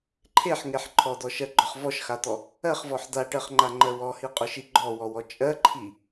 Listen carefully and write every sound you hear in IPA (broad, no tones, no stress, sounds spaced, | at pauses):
ǃʰ e ħ ŋ e ħ ǃʰ ɔ d̪ ɔ ʃ ɜ ɡ͡ǃ ɔ χ v ɔ ʃ x a t̪ ɔ | ɜ χ v ɔ ħ d̪ a ʈ ɜ χ ŋ͡ǃ a ŋ͡ǃ ɜ w ɔ h i qʼ ʊ ʃ i ɡ͡ǃ ɔ w ɔ w ɔ t͡ʃʼ ɜ ǃʰ i